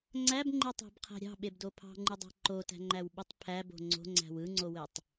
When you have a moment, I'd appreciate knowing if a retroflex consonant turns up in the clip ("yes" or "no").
no